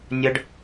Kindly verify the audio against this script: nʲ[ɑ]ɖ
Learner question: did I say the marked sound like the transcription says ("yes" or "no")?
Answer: no